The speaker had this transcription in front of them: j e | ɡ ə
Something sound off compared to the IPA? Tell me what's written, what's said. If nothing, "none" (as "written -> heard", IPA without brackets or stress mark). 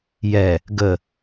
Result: e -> ɛ